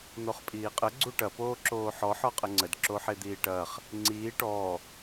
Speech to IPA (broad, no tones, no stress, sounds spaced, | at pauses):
n̪ o χ pʼ iː qʼ ə ɡ͡ǀ u ʈ ɐ p oː ǁ oː ħ ɔ ħ ɔ qʼ ə ŋ͡ǀ ə d ǁ o ħ e d̪ iː ʈ ɐː χ | ŋ͡ǀ iː ʈ ɔː